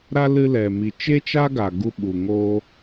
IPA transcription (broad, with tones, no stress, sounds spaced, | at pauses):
ɾ a˧ l ɨ˧ l ɛ˨ m i˨ t͡ʃ e˦ t͡ʃ a˦ ɡ a˨ ɡ u˧ ɓ u˨ ŋ oː˧